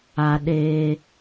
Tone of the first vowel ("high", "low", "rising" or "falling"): high